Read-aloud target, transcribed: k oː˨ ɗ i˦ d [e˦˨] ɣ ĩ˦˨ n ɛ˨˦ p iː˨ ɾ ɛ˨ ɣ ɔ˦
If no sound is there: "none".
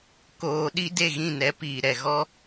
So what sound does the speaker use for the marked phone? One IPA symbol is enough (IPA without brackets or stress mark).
e˦˨